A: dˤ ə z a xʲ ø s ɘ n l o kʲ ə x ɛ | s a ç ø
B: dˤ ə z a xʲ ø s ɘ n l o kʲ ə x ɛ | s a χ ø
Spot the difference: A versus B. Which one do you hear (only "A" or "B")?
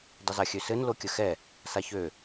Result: A